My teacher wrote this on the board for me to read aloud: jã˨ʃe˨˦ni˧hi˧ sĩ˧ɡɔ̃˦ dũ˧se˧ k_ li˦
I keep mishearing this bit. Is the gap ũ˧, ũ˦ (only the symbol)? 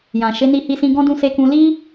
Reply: ũ˧